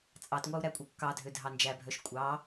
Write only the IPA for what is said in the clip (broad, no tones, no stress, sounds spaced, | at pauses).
t͡sʼ ɑ t ŋʷ ɑ u̯ ɾ æ kʷʼ œ kː ɑ dʱ ø dʱ ɑ n d͡ʒ æ bʱ œ ʃ kʷʼ ɑ